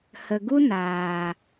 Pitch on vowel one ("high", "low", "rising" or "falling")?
low